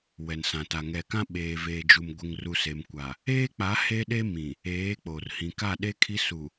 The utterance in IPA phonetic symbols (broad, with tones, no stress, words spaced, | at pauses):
wɛ˨nsã˨ta˨ ŋɛ˨kã˦ ɓeː˨veː˨d͡ʒu˨m ɡʷɪ˨ŋru˨ se˨mkʷa˨ | eː˦k͡pa˨˦ he˦ɗe˦ mĩ˨ | eː˨˦k͡po˨r hĩ˨ka˦˨ɗe˦kʰi˦ su˨